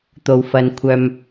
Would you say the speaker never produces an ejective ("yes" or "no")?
yes